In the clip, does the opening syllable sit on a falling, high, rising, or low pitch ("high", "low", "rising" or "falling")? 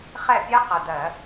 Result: falling